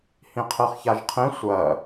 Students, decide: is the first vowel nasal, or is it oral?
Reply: nasal